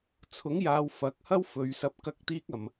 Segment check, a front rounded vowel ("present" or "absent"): absent